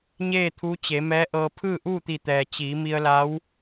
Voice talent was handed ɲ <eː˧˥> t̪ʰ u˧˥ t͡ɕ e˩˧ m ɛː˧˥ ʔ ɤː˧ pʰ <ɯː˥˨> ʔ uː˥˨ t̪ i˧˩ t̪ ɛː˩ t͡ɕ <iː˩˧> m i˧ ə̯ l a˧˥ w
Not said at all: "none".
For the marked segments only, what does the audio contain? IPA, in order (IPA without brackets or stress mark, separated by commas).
eː˥˨, ɯː˥˨, iː˩˧